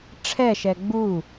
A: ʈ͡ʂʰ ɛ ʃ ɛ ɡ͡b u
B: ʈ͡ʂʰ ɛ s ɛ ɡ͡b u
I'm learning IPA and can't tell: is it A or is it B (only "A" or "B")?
A